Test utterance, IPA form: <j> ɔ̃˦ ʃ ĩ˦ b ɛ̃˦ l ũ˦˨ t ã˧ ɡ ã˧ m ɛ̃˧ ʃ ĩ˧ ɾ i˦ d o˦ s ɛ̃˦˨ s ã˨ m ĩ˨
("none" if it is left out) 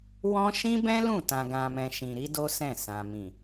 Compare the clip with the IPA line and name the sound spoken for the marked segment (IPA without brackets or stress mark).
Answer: w